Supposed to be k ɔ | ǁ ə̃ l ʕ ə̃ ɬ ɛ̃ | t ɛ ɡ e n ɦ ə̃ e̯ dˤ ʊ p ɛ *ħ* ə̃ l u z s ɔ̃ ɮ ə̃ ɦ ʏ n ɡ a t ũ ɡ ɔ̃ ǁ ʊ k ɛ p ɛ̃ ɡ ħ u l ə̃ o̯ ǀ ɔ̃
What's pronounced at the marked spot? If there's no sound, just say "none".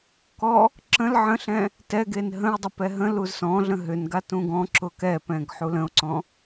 ɦ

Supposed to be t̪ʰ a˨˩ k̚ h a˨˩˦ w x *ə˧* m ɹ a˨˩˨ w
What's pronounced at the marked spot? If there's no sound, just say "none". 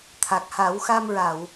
a˧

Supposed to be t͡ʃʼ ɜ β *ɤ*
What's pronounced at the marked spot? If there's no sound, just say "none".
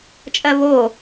o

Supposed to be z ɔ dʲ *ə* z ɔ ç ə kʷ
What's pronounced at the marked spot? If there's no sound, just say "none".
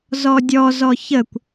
ɔ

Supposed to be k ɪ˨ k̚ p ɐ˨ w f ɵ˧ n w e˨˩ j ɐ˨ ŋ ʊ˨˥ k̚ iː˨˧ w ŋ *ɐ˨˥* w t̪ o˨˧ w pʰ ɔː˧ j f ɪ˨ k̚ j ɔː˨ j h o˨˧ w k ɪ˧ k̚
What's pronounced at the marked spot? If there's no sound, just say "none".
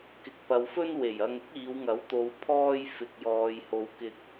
ɐ˨˥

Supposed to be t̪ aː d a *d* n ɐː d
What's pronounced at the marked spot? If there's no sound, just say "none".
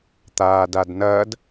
d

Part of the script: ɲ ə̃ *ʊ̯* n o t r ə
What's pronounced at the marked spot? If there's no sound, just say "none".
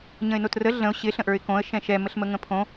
ɪ̯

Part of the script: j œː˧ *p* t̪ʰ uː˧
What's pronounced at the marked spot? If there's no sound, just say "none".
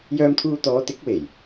m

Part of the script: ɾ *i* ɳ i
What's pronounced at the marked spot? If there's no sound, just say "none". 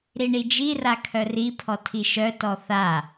i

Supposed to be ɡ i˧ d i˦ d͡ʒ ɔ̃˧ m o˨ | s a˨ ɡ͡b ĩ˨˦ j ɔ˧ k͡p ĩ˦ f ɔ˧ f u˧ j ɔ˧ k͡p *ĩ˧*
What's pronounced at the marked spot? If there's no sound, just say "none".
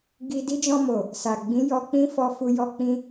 ĩ˧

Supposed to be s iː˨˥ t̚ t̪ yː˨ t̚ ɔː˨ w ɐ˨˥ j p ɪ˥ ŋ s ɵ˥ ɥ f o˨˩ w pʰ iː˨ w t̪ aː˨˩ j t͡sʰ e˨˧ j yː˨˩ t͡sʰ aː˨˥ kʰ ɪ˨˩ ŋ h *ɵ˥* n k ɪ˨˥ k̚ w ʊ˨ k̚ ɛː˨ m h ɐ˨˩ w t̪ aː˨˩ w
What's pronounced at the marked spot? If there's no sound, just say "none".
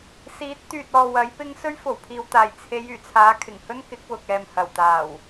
ɵ˥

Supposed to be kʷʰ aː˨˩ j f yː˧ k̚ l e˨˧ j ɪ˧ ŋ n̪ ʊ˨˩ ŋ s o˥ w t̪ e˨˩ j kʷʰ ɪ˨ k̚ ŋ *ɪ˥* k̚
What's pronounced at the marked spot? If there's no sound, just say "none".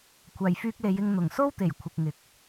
ɪ˨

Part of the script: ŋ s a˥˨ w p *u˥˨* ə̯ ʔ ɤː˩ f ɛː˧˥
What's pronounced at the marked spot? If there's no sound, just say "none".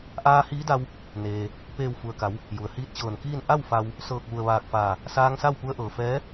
u˧˥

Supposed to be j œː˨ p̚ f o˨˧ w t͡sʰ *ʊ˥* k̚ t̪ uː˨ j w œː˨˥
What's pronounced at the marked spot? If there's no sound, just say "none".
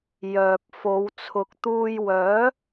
ʊ˨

